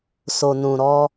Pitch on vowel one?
low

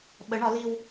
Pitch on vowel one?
rising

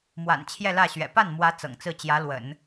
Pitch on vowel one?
low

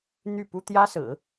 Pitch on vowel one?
falling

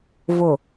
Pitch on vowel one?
low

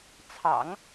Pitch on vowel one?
low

